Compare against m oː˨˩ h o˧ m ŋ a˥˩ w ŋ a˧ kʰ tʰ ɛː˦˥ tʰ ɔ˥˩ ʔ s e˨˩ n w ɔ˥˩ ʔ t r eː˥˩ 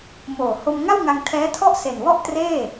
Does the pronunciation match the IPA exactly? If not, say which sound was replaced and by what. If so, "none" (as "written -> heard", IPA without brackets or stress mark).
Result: kʰ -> ŋ